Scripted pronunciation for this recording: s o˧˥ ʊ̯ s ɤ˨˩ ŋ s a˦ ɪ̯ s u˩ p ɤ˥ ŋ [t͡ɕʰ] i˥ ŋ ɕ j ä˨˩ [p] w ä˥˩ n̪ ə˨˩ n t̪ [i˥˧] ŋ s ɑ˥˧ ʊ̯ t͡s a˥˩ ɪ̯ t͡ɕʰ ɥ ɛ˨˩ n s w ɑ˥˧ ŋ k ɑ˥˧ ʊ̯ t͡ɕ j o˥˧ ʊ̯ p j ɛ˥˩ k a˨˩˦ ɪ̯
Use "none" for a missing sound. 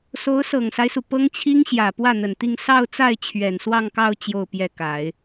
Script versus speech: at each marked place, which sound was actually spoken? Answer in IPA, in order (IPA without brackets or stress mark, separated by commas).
t͡ɕʰ, p, i˥˧